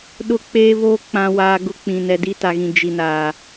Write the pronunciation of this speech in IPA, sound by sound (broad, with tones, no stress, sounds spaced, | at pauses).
ɗ ʊ˦ k͡p eː˦ β oː˦ k͡p ã˦ w aː˦ ɡ ʊ˦ k͡p ĩ˨ n ɛ˨ d i˦ t a˨ ɣ ĩ˨ d͡ʒ i˨ n aː˨